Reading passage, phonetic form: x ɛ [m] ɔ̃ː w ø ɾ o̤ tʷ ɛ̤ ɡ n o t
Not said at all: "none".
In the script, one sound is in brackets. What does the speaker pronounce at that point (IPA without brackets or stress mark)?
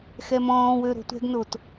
m